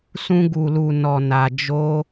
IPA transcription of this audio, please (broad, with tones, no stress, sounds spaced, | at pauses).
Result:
s ũ˧ ɡ u˨ l u˨ n ɔ˨ n a˨ d͡ʒ o˧